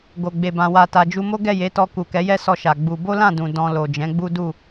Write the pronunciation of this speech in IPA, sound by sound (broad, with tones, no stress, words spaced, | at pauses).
ɡo˨ɡ͡be˨bã˨ wa˨ta˨d͡ʒu˧ mo˦ɡɛ˦˨je˨˦tɔ˧ ku˨kɛ˨˦jɛ˦sɔ˧ ʃa˨ɡ͡bu˧ bo˦lã˦˨dũ˨ dɔ̃˧lo˨ d͡ʒɛ̃˨˦ɡ͡bu˦du˦˨